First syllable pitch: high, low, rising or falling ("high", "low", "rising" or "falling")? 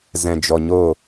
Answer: low